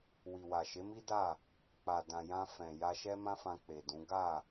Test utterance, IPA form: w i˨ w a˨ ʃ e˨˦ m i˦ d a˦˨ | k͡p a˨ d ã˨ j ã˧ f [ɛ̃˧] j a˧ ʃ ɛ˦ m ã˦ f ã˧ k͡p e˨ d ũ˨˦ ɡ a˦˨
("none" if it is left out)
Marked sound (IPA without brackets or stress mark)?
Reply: ɛ̃˨